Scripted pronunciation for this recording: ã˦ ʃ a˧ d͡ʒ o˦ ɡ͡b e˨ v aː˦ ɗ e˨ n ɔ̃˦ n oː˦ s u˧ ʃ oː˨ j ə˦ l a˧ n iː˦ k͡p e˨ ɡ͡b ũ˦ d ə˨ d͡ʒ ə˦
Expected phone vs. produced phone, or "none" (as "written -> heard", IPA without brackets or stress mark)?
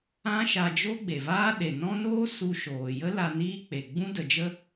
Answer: none